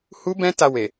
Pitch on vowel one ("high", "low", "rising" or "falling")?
high